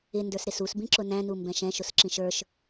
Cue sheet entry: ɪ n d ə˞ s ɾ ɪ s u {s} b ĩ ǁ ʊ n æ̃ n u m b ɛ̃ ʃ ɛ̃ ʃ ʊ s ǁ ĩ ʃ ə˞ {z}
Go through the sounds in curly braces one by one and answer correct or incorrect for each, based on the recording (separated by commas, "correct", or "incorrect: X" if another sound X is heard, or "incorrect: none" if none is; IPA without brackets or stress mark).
correct, incorrect: ʃ